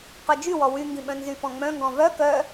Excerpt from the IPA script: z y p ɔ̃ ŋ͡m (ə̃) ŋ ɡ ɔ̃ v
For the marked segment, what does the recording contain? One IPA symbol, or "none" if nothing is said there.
œ̃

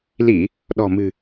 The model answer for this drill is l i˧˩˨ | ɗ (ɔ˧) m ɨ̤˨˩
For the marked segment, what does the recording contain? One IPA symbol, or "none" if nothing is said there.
ɔ̤˨˩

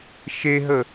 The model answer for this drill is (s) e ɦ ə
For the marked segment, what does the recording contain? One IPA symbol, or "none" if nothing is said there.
ʃ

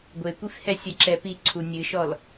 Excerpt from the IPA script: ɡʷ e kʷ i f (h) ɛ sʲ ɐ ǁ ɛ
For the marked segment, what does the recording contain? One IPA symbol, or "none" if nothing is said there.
h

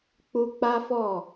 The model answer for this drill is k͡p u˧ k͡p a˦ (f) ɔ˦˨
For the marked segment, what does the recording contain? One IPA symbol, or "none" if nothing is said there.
f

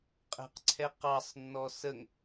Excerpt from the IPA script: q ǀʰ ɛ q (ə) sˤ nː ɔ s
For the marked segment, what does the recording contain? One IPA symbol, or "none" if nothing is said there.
ɑ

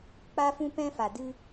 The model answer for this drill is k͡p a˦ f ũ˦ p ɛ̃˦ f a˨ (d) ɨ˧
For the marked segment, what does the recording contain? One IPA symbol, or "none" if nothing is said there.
d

